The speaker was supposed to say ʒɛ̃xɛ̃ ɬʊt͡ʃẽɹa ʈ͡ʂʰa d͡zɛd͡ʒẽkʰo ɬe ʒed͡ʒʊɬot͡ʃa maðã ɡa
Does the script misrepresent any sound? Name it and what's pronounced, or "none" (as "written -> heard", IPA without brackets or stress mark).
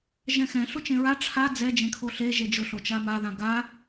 none